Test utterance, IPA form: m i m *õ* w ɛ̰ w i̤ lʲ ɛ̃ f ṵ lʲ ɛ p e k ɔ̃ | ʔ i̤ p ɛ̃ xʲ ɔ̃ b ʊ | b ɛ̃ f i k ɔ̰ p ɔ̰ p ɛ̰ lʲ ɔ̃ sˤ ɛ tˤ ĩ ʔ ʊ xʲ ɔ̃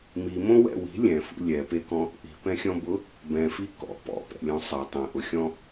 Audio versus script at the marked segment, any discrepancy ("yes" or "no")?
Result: no